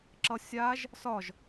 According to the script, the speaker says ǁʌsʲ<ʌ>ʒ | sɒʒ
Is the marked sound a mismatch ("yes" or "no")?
yes